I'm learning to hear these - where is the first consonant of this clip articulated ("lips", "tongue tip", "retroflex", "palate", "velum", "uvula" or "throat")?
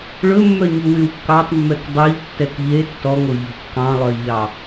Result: retroflex